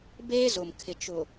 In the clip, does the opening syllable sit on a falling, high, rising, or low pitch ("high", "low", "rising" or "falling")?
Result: high